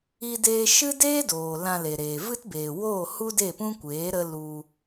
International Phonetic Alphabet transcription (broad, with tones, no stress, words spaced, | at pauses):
i˦deː˦ ʃɨ˦deː˦doː˨ lã˧le˨ɾeː˨ vɨ˦tbeː˨ woː˦˨hu˦de˦˨pũ˦ kʷeː˨˦ ɾə˦ lu˧